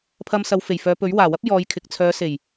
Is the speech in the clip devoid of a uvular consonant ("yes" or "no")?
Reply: yes